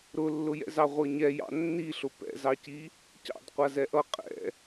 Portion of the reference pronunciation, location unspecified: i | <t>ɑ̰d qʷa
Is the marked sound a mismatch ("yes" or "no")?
yes